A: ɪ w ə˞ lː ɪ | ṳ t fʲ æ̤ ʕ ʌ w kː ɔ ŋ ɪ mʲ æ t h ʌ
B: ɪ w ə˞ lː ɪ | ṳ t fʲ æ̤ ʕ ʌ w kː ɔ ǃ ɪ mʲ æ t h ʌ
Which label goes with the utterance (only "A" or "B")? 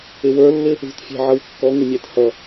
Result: A